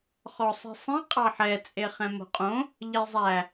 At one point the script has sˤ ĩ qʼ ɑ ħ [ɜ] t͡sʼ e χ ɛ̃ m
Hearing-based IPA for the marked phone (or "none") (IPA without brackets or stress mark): ɛ